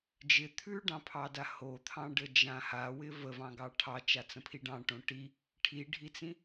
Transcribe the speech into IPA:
d͡ʒ ɪ t̪ʰ ʉ ɖ ɑ̃ pʰ ɑ d a h o t̪ʰ ɑ̃ ɖ ə d͡ʒ ã h a w ɪ v ə v ɑ̃ ɡ ɑ ʈʰ ɑ t͡ʃ a t͡s ə̃ pʰ i ɖ ɑ̃ ʈ õ ʈ i | ʈʰ i ɖʱ i t͡s ĩ

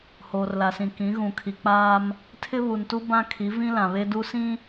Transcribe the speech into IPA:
h oː˨ r l a˨ s ĩ˨ k ĩ˨˦ ɣ ũ˨ kʰ i˨ k͡p aː˦ m | tʰ ɪ˦ β u˨ n t u˦ b ã˦ kʰ i˨˦ v ĩ˦ l ã˨ β e˦ d u˦ s ĩ˦

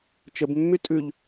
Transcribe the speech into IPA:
t͡ʃ ə b mː y tʼ ʉ ʎ

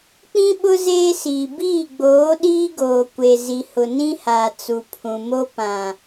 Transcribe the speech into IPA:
k͡p ĩ˦ ɓ ʊ˦ z eː˦ s iː˨ b iː˦˨ ɡ͡b oː˨˦ ɗ iː˦ ɡ oː˨ kʷ e˨ z i˨ h ʊ˨ n ĩ˦ h aː˨ t͡s u˨ pʰ ũ˨ m o˦ p ã˨

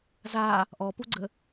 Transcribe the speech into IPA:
z a | ʔ ɔ p u ɡ͡ǀ ə

